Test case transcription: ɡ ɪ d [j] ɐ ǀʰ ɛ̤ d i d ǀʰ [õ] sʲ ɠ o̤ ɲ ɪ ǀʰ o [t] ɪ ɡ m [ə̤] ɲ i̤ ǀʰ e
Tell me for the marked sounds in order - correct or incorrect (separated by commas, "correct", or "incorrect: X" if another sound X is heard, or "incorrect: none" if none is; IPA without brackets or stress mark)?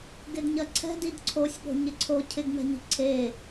incorrect: ɲ, incorrect: o, incorrect: cʰ, incorrect: ɛ̤